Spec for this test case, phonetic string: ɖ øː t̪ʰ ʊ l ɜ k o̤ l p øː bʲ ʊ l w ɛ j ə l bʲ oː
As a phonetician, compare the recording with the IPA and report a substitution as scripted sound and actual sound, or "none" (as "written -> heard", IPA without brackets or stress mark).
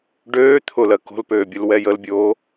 none